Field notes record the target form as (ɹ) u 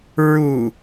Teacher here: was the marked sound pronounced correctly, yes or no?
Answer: yes